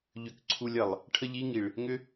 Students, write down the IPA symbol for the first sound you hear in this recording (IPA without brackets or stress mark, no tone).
ʎ